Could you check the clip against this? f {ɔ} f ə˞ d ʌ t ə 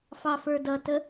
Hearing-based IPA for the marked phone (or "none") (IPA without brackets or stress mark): ɑ